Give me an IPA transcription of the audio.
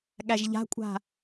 ɠ æ ʒ ʎ a̤ kʷʼ a̤

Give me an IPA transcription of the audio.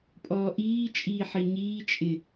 pʼ ɔː ʔ iː t͡ʃʼ iː ħ i ɲ iː t͡ʃʼ ɪ

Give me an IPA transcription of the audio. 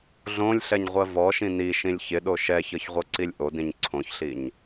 ɮ õ lʲ ɬ ɛ ɲ ʁʷ ɜ v ɔ ʃ ĩ n i ʃ ĩ lʲ ç ɪ ɗ o ʃ ɛ ç ɤ ç ʁʷ ɤ ǀ i lʲ ʔ o d ĩ ɲ ǀʰ õ ç ɬ i ɲ

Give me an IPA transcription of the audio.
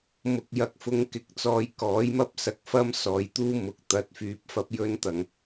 m ʊ˨ k̚ j ɐ˨ k̚ f ʊ˧ ŋ k ɪ˨˥ k̚ t͡s ɔː˨ j k ɔː˨˥ j m ɐ˥ p̚ s ɐ˨ k̚ f ɐ˥ m s ɔː˨ j t̪ uː˥ m ʊ˨ k̚ t̪ ɐ˨˥ t̚ f yː˨˥ p̚ f ɐ˧ p̚ j ɵ˧ n t̪ ɐ˨˩ ŋ

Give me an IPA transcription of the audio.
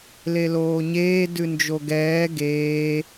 l e l oː ɲ eː d ʉ n d͡ʒ o ɡ ɛː ɡ eː

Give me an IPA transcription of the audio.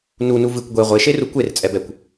n u n u v ɨ kʷ ɡʷ e ʁʷ e ʃ e r u kʷ e r t͡sʼ ɛ b ɛ kʷ

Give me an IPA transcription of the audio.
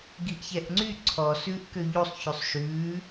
ɡ i ʔ ç ɛ ʔ ŋ͡ǀ y ǀʰ ɔ s ʉː ʔ k ø ʎ u sˤ ç y sˤ ʃ ʉː

